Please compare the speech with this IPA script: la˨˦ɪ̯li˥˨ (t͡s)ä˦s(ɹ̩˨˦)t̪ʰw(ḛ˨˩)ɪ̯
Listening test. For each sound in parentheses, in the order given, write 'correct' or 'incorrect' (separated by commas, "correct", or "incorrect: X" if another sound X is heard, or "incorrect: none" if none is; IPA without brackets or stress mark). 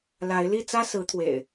correct, correct, correct